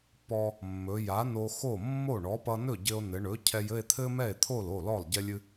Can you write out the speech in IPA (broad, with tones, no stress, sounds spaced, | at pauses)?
p ɔ˧ | mː ɵ˩˧ j a˩˥ n o˧ x o˥˩ mː o˥˩ ɳ ɔ˩˥ p ʌ˧ n ɵ˥˩ ɟ ɘ˧ o̯ n ɘ˩˧ ɳ ɵ˩˥ cʰ ɛ˧ j ɘ˥˧ e̯ t̪ʰ ɘ˥ m ɛ˥˩ e̯ t̪ʰ o˥˩ l o˥˩ l ɔ˥˩ lˠ ɟ ɛ˥ lʲ ɨ˥